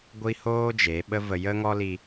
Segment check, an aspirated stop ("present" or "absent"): absent